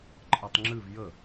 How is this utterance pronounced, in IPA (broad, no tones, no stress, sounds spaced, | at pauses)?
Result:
ǃʼ ɜ tˤ ŋ͡ǁ ɨ v j ə